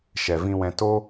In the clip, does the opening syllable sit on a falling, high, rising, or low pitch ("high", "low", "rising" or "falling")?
low